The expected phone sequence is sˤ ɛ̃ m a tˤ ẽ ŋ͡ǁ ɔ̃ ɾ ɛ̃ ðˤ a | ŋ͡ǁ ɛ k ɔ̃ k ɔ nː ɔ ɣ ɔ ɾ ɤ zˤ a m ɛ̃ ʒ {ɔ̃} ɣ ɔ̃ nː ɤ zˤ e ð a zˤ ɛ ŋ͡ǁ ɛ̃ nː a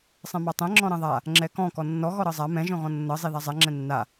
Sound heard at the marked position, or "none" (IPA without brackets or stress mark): ɔ̃